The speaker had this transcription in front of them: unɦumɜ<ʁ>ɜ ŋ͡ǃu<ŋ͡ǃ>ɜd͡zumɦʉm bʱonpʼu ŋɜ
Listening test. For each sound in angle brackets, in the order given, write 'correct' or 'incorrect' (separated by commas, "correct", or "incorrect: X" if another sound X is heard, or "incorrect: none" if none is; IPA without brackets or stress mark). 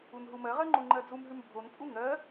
correct, correct